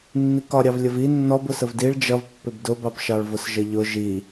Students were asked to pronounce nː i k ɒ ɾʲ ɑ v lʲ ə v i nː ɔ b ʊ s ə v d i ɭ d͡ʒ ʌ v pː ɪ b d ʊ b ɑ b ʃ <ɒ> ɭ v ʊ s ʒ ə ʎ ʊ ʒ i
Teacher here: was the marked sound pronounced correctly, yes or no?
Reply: no